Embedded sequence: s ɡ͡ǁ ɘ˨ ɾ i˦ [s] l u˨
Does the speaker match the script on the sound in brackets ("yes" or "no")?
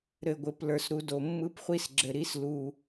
yes